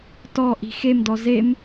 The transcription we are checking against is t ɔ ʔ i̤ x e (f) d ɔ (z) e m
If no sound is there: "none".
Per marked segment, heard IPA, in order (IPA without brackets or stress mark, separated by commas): m, z